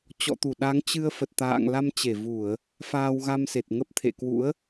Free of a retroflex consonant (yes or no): yes